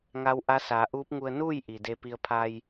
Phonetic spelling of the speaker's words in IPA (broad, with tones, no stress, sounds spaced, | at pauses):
ŋ a˧˥ w ʔ a˧˥ s aː˩˧ ʔ uː˧˥ p̚ ŋ u˧ ə̯ n uː˥˨ j ʔ i˩ d e˧ p i˧ ə̯ pʰ a˧ j